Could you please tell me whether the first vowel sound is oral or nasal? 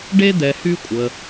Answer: oral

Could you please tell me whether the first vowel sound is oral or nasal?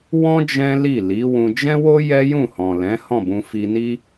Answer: nasal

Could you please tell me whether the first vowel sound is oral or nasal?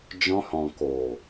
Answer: nasal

